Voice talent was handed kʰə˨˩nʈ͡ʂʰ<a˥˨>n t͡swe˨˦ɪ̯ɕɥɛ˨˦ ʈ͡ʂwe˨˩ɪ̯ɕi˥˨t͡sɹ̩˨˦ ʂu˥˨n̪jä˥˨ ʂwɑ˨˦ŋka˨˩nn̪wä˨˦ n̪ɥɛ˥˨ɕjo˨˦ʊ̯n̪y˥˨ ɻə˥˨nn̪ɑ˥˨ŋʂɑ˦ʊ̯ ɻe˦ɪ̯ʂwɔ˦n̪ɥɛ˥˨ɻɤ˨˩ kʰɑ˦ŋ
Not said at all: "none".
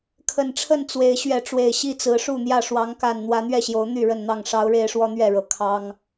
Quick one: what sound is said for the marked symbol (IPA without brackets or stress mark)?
ə˥˨